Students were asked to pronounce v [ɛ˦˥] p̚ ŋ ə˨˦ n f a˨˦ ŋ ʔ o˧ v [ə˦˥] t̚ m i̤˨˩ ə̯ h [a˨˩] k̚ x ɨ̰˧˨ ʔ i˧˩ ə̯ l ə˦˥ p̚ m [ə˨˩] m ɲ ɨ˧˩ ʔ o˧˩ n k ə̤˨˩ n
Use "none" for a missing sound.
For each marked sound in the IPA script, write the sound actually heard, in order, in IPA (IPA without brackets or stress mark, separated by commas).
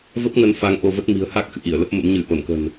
ə˦˥, ə˦˥, a˦˥, ə̰˧˥